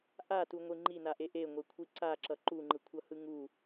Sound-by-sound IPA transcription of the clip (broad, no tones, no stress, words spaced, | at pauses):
ʔatuŋʷi ŋ͡ǃinaʔe ʔeŋʷekʷʰi ǀaǁʌ ǃuŋ͡ǃɯkʷʰʌhɯ ŋu